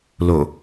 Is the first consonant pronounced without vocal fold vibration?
no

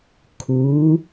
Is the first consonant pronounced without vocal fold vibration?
yes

